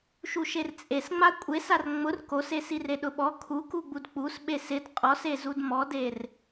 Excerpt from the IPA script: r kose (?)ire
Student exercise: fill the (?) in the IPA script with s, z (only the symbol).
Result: s